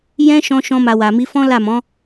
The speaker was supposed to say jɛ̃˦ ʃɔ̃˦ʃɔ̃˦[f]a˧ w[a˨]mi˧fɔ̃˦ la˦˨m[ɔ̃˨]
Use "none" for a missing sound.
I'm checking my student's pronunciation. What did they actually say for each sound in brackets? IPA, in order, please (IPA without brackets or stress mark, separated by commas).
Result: m, a˨, ɔ̃˨˦